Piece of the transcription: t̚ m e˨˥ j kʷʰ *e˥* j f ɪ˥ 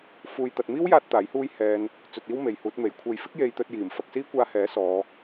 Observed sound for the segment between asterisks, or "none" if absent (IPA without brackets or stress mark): e˧